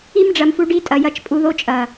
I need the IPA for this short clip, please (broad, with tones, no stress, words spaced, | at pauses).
i˧m ɖ͡ʐɐ˨mfu˧ ɖi˧ tʼɐ˨jɐ˧t͡ʃpʼu˧ðo˧ t͡ʃʼɐ˨